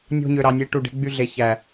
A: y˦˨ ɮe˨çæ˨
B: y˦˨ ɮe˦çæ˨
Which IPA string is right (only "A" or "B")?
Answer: A